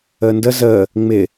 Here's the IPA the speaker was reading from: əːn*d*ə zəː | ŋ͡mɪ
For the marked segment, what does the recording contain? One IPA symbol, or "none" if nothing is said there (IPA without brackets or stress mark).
d